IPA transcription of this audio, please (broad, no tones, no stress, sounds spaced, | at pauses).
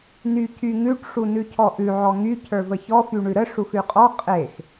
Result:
n y c y ŋ ʉ ʈ ʂ u n ʉ cʰ ɔ ʔ ʉ ʕ ɔ ŋ y cʰ ə˞ v ə ç ɔ f y ɳ ʉ ɾ ə ʂ u x ʉ qʼ ɔ qʼ e x